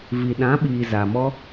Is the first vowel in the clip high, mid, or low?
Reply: high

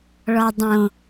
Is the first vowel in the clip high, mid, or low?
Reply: mid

